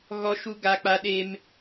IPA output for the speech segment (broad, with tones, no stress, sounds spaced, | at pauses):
ɣ ɔ˦ ʃ u˦ ɡ a˦ k͡p a˦ ɗ e˦ m